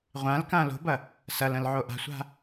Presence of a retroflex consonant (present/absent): absent